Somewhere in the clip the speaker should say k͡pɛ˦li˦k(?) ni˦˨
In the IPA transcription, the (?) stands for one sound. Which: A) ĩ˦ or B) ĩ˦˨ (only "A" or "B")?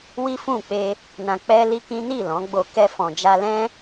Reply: A